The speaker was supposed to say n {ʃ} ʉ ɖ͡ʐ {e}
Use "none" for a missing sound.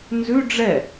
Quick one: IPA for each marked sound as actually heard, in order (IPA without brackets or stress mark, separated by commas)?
z, ɛ